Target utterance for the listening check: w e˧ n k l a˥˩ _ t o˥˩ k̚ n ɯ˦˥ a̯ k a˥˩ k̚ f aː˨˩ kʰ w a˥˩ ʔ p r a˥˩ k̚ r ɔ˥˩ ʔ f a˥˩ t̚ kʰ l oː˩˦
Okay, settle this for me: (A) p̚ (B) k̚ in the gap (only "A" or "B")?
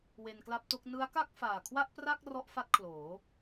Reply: A